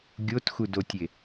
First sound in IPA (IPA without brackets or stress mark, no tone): ɡʲ